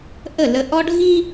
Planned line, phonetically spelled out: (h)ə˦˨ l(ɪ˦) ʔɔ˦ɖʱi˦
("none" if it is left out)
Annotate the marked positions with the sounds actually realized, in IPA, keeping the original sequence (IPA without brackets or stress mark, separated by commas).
ʔ, ə˦